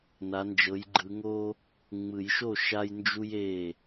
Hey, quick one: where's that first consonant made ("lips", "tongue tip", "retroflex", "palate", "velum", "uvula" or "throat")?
tongue tip